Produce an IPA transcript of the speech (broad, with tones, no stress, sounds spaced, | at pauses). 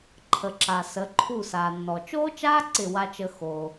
ǃʰ ə˨ ǁ a˨ s ə˨˦ ǃʰ u˦˨ s aː˨ nː ɔ˨ t͡ʃ oː˦ t͡ʃ aː˦ ǀ ɪ˦˨ w a˦ t͡ʃ ə˦ x oː˦